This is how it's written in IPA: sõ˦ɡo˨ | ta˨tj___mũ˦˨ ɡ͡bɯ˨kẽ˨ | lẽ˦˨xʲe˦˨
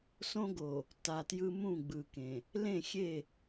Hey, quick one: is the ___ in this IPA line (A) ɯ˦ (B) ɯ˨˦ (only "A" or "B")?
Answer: A